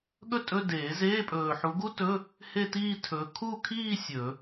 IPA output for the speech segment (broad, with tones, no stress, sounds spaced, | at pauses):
ɠ ɵ˥ tʼ ɵ˧˥˧ d eː˨˩˦ z eː˧˥˧ pʼ ɵː˨ ħ u˨˦ ɡ u˥ t ɵ˧˥˧ | h e˥˧ t iː˥˧ tʰ ɵː˨˦ kʰ u˥˧ kʰ iː˥˧ sʲ ɵ˨˩˦